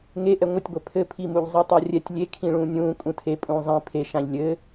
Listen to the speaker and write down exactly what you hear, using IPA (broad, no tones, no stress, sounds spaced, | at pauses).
ŋ e ʔ ɛ ŋʷ ə tʲ ɡʷ ɛ pʰ ɘ pʰ i m u ʎ zˤ u tˤ a rʲ ɛ tʲ lʲ e kʰ ĩ ɭ ũː nʲ ũː kʼ ũ tʰ e pʼ ũː zˤ ĩ pʰ e ʃ ã ʎ lʲ ɘ